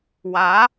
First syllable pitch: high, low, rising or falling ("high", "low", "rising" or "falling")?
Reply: rising